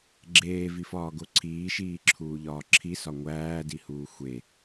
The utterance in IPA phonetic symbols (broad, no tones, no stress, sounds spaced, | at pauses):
ɡ͡ǁ eː v i f ɒː ɡ o ǀʰ iː ʃ iː ǁʰ uː ʎ ɒː ǁʰ i s ɒ ŋʷ æː d i h uː xʷ e